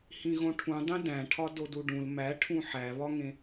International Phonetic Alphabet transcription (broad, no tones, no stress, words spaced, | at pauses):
hĩɣõʈʰũdˤẽ dæ̃ʈʰɒ doduɖũl mæʈʰũ ħæβɒŋẽ